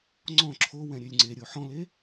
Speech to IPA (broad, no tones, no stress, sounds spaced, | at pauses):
ŋ͡ǀ ɔ̃ ǁʰ o w ɛ̃ ɾʲ ø lʲ ŋ͡ǀ e ɾʲ o ħ ɔ̃ l e